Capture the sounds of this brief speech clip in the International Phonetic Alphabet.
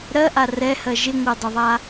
ɾɜʔa rɛhɜ ʒɪŋʷɜdˤɪðˤa

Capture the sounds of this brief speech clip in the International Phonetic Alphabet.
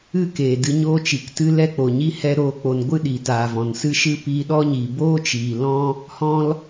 ɨ˦˨keː˨ dɨ˧ɲoː˦t͡ʃi˨ktɨ˦ lɛ˦k͡po˨ɲi˦ hɛ˦ɾoː˦k͡po˧n ɡʷɨ˦ɗi˨taː˨ vɔ̃˨nsɨ˦ ʃɨ˦ piː˧ɗɔ˦ɲiː˨ boː˦t͡ʃiː˨lɔ̃˦ | hɔ̃˦l

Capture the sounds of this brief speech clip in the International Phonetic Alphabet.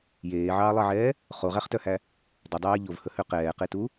jeːʕɑːlˠɑʕɛː | χoʁæχtœhæ | dɵdˤeː ʎovhɵhø qɛːqetu

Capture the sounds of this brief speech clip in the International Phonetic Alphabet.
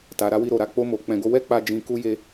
ta˨ɾa˧wi˧ ɾo˨ɾa˨˦ k͡po˦mo˧k͡pɛ̃˧ ɡo˧wɛ˦k͡pa˧ d͡ʒĩ˧ ku˦je˦

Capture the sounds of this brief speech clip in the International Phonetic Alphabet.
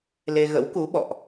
le˧ɣə̰˧˥wku˨˦ɓɔ̰˧˨ʔ

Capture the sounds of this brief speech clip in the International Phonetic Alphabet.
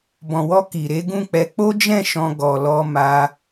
bɔ̃˨wɔ˧ ki˨ ɾe˨˦ɡũ˦˨k͡pɛ˧ k͡po˦d͡ʒɛ̃˦˨ ʃɔ̃˧ ɡɔ˨lɔ˧ ma˧

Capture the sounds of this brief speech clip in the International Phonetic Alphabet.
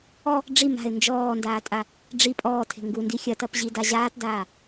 ɔ | ɖ͡ʐi ma̤ɪ̯ nd͡ʒɔːndaːtʼa | ɖ͡ʐi pʼɔːtʰe̤ ŋɡundi xʲɐtɐpʑida ʑaːtdaː

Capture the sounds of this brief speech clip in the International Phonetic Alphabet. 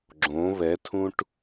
ɡ͡ǁõ βɛtʰũʈ

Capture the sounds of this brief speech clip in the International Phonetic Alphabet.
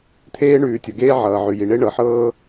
t̪ʰeː˥ɳʉː˩tʲʌ˩ɡeː˥ ʕʌː˩ʕʉ˩ji˩ ɳe˥ɳɤ˩ħɤː˥

